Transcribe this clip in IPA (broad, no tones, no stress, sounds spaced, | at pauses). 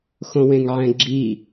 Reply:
x õ w ẽ ŋ ʕ ɛ̃ ɡ͡ǁ i